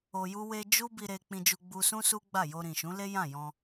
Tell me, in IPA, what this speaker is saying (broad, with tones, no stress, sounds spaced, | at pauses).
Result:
o˧ j u˦ w e˦ d͡ʒ u˦ b i˧ ɾ e˧ k͡p ĩ˧ d͡ʒ u˧ ɡ͡b u˧ s ũ˦ s u˦ ɡ͡b a˦˨ j o˧ ɾ ĩ˨ ʃ ũ˨˦ l e˦ j ã˦˨ j ɔ̃˧